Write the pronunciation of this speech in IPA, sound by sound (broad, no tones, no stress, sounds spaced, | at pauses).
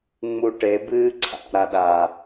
ŋ͡m u ʈ e b ɨː ǀʰ a̰ ɾ a ɗ a